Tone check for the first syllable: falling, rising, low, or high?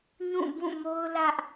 falling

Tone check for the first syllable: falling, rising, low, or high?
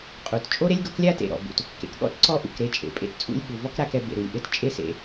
low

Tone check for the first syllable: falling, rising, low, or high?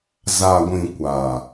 low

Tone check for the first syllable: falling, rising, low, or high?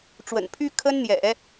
low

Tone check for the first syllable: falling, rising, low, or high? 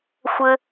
high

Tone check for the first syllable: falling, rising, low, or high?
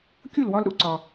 falling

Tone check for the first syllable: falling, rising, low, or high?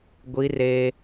high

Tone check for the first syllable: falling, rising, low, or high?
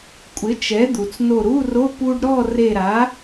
rising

